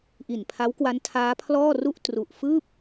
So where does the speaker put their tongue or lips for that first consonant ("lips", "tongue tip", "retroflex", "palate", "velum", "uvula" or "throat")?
throat